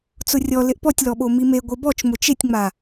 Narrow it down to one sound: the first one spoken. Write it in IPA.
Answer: t͡s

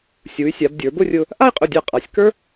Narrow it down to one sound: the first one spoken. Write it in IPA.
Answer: sʲ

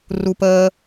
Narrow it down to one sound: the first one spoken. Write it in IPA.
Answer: r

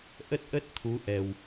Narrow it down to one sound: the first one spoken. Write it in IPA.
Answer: ʔ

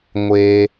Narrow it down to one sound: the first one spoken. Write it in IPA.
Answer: ŋʷ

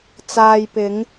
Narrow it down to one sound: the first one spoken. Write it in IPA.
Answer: t͡s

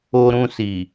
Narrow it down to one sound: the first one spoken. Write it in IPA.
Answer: o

